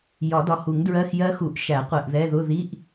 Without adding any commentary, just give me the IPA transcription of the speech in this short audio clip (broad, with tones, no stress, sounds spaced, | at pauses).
j ɒ˨˩˦ d ɒ˨ h u˨˩˦ ŋ d ɹ ɜ˧˥˧ x j ɜ˦˥ x u˨˩˦ ʔ ʃ æ˨˩˦ qʷ ɛ˨ ʔ ð ɛ˧˥˧ ð ʊ˧˥˧ ð i˧˥˧ ʔ